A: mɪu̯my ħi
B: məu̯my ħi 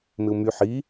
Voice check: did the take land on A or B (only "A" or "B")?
A